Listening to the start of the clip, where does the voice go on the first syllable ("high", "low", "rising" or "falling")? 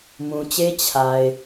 low